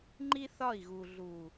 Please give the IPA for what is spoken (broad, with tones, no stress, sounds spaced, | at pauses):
ŋ͡ǃ i˦ θ ɒ˦˨ i̯ ɣ u˨ ɮ u˨